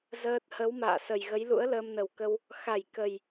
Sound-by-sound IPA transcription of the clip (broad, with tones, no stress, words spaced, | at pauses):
zəː˦˥t̚ hə˨˦wma̰ː˧˨sə˨˩jɣə˨˦j lṵ˧˥ə̯ləː˧mnə˨˩wkə˧w | xa˧˩j kə˨˩j